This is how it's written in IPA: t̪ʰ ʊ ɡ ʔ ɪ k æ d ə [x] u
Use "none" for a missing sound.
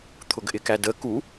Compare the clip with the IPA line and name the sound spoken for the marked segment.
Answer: k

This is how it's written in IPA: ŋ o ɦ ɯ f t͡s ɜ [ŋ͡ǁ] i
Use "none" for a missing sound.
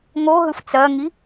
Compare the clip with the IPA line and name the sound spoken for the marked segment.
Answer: ŋ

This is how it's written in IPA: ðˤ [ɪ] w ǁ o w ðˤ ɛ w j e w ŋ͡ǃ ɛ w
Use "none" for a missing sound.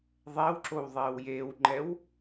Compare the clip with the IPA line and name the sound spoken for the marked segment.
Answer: ɛ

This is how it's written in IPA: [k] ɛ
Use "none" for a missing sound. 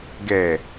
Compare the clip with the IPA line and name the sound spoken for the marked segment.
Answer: ɡ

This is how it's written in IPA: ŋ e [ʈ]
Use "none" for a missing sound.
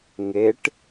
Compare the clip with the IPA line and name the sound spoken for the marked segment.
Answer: ʈ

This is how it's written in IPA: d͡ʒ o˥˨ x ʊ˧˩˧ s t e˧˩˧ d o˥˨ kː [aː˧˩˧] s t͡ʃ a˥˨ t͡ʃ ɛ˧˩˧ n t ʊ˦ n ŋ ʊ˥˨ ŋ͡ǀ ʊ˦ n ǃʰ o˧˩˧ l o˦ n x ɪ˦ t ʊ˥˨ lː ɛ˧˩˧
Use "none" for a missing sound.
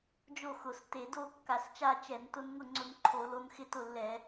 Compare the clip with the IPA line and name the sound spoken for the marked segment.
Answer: a˧˩˧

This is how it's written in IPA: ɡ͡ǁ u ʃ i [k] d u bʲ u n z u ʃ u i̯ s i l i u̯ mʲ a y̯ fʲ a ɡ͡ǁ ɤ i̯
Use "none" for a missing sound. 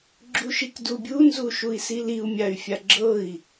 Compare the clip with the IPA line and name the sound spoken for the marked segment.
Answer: k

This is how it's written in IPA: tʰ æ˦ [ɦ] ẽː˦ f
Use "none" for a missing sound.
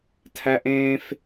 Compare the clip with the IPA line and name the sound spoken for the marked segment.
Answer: ʔ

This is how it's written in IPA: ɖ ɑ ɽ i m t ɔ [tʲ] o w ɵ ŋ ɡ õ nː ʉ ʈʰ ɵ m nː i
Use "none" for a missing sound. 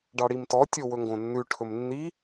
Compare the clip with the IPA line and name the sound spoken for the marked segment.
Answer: tʲ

